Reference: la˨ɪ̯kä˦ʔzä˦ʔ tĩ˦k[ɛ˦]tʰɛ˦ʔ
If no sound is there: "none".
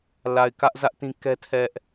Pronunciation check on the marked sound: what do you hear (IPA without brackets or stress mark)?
ɛ˦